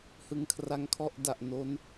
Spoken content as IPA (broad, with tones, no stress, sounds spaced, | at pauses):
h ɯ˧ ŋ kʰ r a˦˥ ŋ kʰ ɔ˥˩ ʔ d a˨˩ ʔ n o˦˥ n